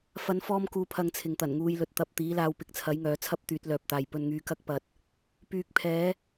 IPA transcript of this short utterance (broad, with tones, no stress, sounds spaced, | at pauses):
f ɐ˨˧ n f ɔː˧ m k uː˨ pʰ ɐ˨ ŋ t͡sʰ ɪ˨ ŋ t̪ ɐ˨˩ n ŋ uː˧ j l ɵ˨˥ t̚ t̪ ɐ˨ p̚ t̪ iː˨˥ l aː˧ w p ɪ˧ k̚ t͡sʰ ɐ˨˥ j ŋ œː˨˥ t͡sʰ ɐ˥ p̚ t̪ yː˨˥ t̚ l œː˨ p̚ t̪ aː˨ j p ɵ˧ n ŋ yː˧ k ɐ˥ k̚ p ɐ˨ t̚ | p yː˨˥ k̚ pʰ ɛː˨˥